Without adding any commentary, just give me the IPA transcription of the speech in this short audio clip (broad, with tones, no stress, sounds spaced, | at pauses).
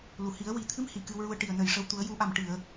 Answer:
l u˨˩˨ h i˨˩˦ ə̯ w i˨˩˦ t̪ʰ ɨ˧˥ m h i˨˩ k ɨ˧ w ɹ u˧ ə̯ ʈ i˨˩ ə̯ n ə˨˩ j ʂ ə˧˥ w t̪ u˨˩˦ ə̯ j u˨˩˦ ʔ a˨˩ m ʈ ɨ˨˩˨ ə̯